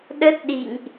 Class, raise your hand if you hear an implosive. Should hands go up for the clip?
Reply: yes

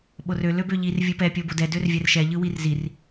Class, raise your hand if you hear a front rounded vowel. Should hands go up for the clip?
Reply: yes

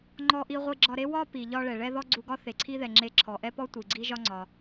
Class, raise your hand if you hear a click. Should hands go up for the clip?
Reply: yes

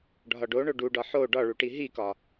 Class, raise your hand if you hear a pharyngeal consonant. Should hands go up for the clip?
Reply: yes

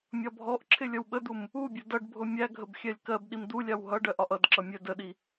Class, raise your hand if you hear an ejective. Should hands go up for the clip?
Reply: no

